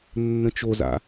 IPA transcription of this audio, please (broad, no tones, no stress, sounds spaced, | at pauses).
nː ə̃ t͡ʃ o z a̰